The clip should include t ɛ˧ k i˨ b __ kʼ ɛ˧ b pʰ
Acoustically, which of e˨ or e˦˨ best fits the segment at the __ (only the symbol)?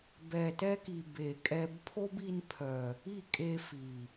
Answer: e˨